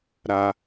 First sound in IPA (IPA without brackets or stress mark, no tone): ɾ